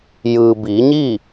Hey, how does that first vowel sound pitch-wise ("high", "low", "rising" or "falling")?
low